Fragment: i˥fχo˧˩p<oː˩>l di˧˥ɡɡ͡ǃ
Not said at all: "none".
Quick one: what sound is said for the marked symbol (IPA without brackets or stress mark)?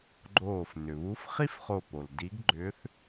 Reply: o˩